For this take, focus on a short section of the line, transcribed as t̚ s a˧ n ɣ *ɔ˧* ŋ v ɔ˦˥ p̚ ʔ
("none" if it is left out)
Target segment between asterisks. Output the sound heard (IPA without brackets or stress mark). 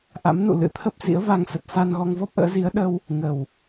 ɔ˧